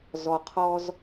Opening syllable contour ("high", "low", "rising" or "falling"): low